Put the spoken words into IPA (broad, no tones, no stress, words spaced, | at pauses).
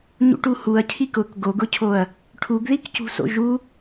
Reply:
ɲṵʈuhuɐ̯cʰik ʊk ɡoɡʊcʰoɐ̯ | ʈʰuɡðikcṳso̰ ʒu